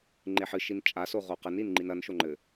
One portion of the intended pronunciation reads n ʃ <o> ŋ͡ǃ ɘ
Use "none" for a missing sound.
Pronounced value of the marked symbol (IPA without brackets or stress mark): o